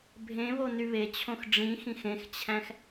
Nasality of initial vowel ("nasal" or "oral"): nasal